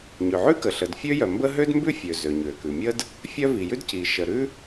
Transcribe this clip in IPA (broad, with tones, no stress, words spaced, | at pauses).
ɲø˩ʕʉ˥kə˩ɬə˩d fʲø˥jœ˩mbə˥ ɦø˥dmbʉ˥fʲø˩ zø˩ɲø˩kʉ˩mʲə˥d | fʲœ˥ vi˩jʉ˥dci˩ ʃə˩ ɾʉ˥